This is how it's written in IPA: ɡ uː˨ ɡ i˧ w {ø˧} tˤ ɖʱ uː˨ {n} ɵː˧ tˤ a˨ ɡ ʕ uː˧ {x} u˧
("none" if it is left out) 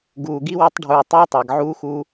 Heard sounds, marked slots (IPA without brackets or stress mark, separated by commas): u˧, tˤ, x